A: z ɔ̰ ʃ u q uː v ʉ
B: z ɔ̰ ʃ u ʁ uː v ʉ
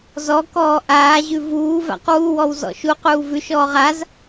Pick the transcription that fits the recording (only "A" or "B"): A